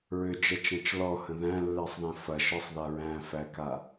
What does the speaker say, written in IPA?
ɹ ʏ d͡ʒ ɛ t͡ʃ æ̃ t͡ʃ l ɔ h ə̃ ð æ̃ lː ɛ sˤ ð æ̃ f ɐ ʃ ɒ sˤ ð a ɹ æ̃ f æ k a

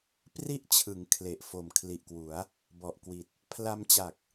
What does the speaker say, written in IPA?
p r i˥˩ ʔ t͡ɕʰ ɯ˩˦ ŋ kʰ l e˨˩ ʔ f o˨˩ m kʰ l i˨˩ ʔ k w u˩˦ a̯ | b ɔ˨˩ ʔ k w i˨˩ t̚ | pʰ l a˧ m t͡ɕ a˨˩ k̚

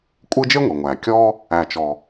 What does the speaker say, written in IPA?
kʷʼ ɯ˦ d͡ʒ e˥ ŋʷ e˩ ŋʷ æ˩ kʲ ɔ˦ | æ˨ t͡ʃ ɔ˨

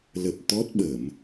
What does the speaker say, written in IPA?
l ə˨˩ p̚ t̪ ɔ˦˥ t̚ ɓ ə˧˩˨ m

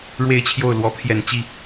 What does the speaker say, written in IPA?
ɻ w e˥˧ ɪ̯ t͡ɕʰ j o˥˩ ʊ̯ l w ɔ˧˥ pʰ j ɛ˨˩ n t͡ɕ i˥˩

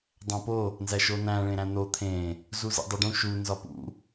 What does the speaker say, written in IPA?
dˤ æ̃ p o | n z æ ʃ o n æ̃ ɭ ẽ ɾ æ̃ n̪ o t̪ʰ ẽ | z u z ḭ dˤ e ɖ ũ ʃ u n z ɒ p ṵ

